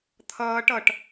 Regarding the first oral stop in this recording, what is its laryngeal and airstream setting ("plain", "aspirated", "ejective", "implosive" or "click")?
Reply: aspirated